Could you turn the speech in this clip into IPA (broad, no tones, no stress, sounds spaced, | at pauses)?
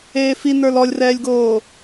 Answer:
eː f i n ə˞ l ɔ lʲ r ɛː lʲ ɡ oː